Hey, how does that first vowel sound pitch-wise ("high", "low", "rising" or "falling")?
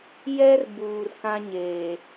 high